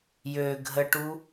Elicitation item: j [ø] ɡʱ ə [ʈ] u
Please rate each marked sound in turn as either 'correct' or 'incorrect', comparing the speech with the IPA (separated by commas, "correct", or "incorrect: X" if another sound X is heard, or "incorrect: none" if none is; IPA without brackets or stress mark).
correct, correct